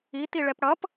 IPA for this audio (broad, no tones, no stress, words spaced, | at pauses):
it̪iɭɛp ɽʌp